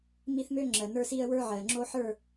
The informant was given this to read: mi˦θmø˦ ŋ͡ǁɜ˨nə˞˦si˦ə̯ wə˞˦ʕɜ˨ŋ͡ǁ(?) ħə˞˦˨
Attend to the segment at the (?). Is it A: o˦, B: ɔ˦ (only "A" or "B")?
A